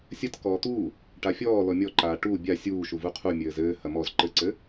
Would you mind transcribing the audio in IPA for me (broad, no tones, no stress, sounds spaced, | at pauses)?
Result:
sʲ ɐ t k ɔː t̪ uː | ʈ a fʲ ɔː l ɔ mʲ ɔ ǃ aː ʈ u bʲ a sʲ uː ʃ u v u qʰ u mʲ ɘː z ɘː h ɐ m ɔ z ǃ ɘ ǀ ɘ